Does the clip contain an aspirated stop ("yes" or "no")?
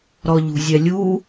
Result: no